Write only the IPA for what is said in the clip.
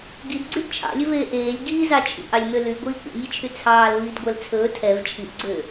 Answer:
ɡidɡ͡ǀyd t͡ʃʰɑ̰lʲɵveː ʔeːlʲ ɡiːzɑ t͡ʃʰḭʔɑlʲmø lyɡʷiː kʷɛ̰nʲet͡ʃʰy t͡sʰɑːl viːdɡʷɛlt͡sʰɵː tʰɛv t͡ʃʰiʔɡ͡ǀø

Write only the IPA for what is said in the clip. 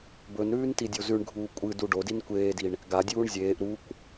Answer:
bɵnɾʉːn tidʲozʉɳɡʱuː kʷʼɨ duɖodin kʷeːdiɳ | ɡadʲuːɳ zʲeːʔ ɾukʷ

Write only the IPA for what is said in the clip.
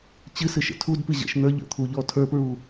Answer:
t͡ɕɨsɨʃə̰ tʰudpɨ ʑə̰ʃn̪ə˞ ʎə̰t̪ʰuʎɔ tʰə˞pɹu

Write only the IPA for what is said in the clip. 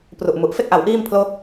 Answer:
pru˨˩ʔmu˨˩ʔ fe˥˩k̚ʔa˩˦w ʔiː˥˩mpʰloː˥˩k̚

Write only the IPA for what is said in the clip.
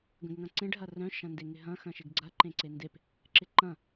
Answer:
ɡə̃ɡŋɐ̃ǀẽɖ ɦɐrœ̃ ʃɐ̃ndeŋɪɦɐ̃ xɐ̃ʃɪɡɡ͡ǀɐ ǃẽǀendep | ǁɪǃɐ̃

